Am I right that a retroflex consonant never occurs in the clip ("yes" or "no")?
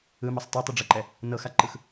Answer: no